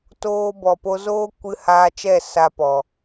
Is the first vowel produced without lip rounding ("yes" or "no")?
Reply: no